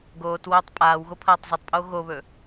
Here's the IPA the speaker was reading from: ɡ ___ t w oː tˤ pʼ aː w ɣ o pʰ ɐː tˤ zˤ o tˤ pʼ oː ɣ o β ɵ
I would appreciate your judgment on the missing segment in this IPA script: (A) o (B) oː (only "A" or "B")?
B